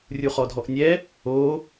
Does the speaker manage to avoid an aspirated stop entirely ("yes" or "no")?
yes